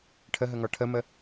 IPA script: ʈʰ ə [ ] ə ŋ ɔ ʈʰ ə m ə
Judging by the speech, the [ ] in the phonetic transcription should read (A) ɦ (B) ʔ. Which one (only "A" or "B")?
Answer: A